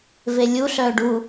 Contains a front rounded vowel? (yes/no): yes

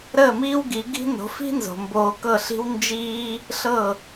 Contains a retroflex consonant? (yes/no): no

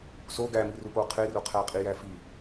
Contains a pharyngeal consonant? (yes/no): no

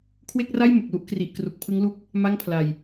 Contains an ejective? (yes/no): no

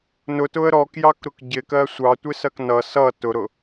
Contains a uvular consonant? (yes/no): no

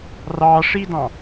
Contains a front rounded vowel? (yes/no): no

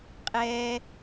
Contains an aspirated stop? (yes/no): no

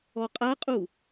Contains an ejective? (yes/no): yes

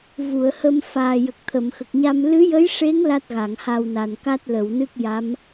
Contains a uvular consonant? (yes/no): no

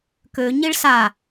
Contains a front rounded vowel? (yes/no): yes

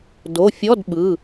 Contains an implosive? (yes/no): yes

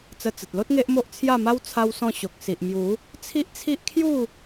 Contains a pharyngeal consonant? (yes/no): no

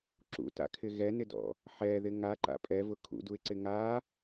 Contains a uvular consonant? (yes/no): no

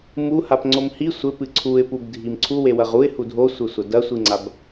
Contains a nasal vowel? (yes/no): no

